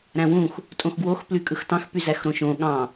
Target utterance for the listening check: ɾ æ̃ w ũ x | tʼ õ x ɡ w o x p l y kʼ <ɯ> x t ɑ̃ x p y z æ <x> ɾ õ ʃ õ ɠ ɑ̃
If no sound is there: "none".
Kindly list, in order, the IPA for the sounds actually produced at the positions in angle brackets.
ɯ, x

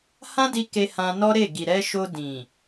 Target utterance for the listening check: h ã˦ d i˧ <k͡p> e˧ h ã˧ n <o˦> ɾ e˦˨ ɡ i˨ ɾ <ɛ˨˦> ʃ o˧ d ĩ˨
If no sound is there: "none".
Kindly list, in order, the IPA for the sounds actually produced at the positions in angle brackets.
k, ɔ˦, ɛ˧

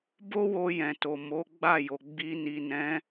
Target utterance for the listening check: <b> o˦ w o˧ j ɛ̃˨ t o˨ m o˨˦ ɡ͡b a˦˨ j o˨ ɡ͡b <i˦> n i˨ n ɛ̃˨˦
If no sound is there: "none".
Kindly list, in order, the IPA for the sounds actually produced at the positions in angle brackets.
b, i˧

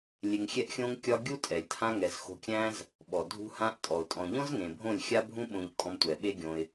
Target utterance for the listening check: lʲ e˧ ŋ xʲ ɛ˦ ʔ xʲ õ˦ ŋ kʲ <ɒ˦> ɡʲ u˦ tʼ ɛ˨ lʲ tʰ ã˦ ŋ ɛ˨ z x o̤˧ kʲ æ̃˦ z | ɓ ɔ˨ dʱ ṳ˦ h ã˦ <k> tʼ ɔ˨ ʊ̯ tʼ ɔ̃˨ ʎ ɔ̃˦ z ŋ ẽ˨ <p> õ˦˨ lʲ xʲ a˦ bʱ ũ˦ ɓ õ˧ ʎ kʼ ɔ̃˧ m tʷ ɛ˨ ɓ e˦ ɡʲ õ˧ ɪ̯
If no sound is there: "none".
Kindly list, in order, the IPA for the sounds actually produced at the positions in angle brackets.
ɒ˦, ʔ, bʱ

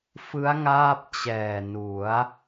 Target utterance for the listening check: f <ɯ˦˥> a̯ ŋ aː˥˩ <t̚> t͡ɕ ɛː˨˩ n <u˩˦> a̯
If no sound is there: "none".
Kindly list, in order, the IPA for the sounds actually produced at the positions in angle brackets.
ɯ˦˥, p̚, u˩˦

